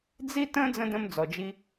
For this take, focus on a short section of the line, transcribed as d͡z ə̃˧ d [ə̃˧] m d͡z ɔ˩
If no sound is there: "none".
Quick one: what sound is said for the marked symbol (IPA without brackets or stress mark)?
ə̃˧